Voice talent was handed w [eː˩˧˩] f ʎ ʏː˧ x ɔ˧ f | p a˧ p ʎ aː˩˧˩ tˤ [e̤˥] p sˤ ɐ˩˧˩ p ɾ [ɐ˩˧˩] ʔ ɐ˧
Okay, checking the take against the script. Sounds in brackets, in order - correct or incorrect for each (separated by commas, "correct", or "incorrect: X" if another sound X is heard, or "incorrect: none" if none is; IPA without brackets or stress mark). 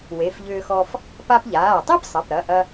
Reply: incorrect: e˩˧˩, incorrect: e˥, correct